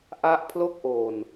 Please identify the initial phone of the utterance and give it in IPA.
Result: ʔ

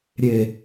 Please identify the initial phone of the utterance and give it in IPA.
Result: ɾʲ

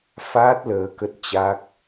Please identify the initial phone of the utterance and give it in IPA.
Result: f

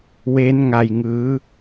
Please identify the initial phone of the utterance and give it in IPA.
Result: w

